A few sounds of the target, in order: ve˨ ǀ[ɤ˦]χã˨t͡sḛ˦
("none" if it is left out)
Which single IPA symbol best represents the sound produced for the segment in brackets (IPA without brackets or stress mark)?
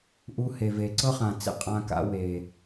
ɤ˦